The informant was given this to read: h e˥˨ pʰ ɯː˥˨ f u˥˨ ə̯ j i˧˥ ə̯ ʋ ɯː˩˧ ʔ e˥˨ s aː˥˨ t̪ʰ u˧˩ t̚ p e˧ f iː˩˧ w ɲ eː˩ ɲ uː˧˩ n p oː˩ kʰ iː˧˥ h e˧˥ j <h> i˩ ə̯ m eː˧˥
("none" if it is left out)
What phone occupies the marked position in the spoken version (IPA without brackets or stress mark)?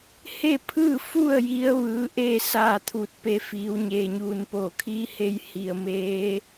h